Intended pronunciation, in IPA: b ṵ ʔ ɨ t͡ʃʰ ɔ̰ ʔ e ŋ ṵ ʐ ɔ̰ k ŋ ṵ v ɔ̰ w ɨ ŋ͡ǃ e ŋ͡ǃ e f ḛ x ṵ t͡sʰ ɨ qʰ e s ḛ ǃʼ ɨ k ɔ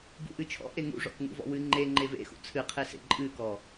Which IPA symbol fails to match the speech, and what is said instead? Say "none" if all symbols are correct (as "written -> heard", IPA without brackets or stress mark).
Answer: f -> v